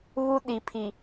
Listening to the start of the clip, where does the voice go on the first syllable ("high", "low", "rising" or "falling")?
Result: high